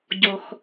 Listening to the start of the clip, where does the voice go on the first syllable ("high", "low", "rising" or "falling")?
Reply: low